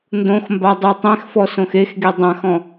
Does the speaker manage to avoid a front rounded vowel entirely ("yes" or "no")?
yes